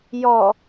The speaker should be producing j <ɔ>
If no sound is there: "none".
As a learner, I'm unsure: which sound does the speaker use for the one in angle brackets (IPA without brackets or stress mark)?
ɔ